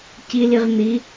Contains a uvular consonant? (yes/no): yes